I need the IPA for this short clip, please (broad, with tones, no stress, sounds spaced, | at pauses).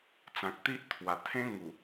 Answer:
t͡s ã˨ k̚ t̪ i˦ ʔ t̪ʰ w a˨˩ t̪ʰ ẽ˦ ŋ u˨˩